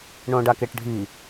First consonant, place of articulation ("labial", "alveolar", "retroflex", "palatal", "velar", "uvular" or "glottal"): retroflex